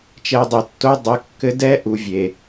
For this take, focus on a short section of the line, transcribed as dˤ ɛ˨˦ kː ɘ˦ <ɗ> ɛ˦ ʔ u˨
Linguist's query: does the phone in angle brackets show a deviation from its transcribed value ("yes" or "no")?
yes